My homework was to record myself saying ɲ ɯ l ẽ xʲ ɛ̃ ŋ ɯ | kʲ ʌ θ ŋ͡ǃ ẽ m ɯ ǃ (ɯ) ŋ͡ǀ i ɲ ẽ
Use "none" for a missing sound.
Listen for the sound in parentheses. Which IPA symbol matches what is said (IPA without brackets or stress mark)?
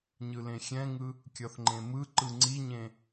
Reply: ɯ